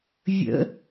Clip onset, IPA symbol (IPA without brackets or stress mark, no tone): vʲ